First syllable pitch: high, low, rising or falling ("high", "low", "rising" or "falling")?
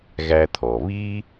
high